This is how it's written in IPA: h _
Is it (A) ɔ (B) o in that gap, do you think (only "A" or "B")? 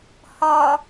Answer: A